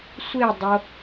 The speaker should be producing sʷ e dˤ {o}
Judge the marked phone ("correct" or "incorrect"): correct